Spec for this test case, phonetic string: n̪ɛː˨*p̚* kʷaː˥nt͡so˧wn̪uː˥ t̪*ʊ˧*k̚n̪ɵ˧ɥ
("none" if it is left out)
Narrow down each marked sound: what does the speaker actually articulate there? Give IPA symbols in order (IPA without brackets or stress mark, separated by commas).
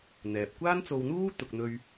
p̚, ʊ˨